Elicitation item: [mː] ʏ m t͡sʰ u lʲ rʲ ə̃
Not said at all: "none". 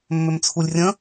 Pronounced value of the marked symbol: mː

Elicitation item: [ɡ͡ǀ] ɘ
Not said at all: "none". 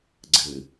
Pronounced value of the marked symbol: ɡ͡ǀ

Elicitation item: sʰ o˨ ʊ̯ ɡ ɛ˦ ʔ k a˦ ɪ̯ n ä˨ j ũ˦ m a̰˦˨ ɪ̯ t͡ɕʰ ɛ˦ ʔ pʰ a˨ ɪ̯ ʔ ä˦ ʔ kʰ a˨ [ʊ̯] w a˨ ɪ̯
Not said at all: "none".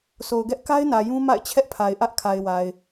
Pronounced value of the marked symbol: ɪ̯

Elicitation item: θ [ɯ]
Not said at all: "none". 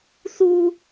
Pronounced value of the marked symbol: u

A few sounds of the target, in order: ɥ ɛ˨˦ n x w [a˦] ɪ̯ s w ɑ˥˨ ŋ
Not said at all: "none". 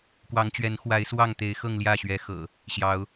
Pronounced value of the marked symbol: a˨˦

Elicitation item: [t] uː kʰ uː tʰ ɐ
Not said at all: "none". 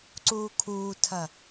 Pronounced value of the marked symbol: ǀ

